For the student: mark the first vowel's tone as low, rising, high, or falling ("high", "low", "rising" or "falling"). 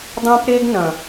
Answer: high